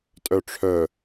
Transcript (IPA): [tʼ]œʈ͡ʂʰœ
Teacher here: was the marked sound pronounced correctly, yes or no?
yes